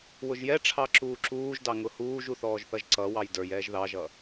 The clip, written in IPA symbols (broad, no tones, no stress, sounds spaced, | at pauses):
w ʊ ʒ j ɛ ʈ͡ʂʰ ɑ ǁ uː ǁ uː ʒ d ɑ ŋ ʊ h uː ʒ u θ ɔː ʒ θ ʌ ʒ ǀ ʌ w ɑ j d ə˞ j ɛː ʒ ð ɑ ʒ ʌ